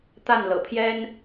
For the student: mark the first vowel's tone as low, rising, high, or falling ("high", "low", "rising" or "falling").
falling